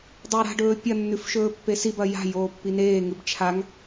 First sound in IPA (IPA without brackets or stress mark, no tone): dˤ